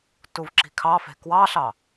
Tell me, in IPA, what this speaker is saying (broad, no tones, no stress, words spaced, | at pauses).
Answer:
tuvǁi̤kʰɑfe̤ kwɑɬɑ